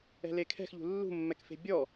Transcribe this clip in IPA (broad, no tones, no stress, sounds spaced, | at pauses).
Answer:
ɛ̤ l e kʰ ɛ̤ x ʎ ṳ lː ṳ mː ɛ k f e̤ bʲ ɔ